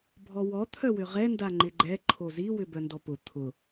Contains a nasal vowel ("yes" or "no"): no